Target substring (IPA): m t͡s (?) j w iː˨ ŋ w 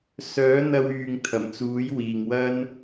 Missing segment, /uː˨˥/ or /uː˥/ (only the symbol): uː˨˥